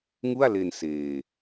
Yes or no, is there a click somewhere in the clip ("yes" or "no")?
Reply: no